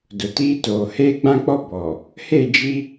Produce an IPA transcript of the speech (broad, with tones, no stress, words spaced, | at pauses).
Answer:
dʊ˨tiː˦toː˨ heː˦ɡ͡bã˦k͡pɔ˦ bɔ˨ | he˦˨d͡ʒi˦